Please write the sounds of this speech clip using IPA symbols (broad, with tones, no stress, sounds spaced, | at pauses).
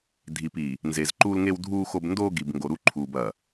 dʱ i˨ p i˨ | n z e˨ z ǃ uː˦ l ŋ e˦ w dʱ uː˦ x o˦ b n d oː˦ ɡ i˨ b ŋ ɡ o˨ ɾ u˦ ǃʰ uː˨ b ɐ˨